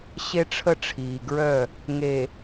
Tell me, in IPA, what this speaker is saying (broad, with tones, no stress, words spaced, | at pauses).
ɕe˦ʈ͡ʂʰə˦ʈ͡ʂʰiː˨ɡɹœ˦˨ | ŋe˨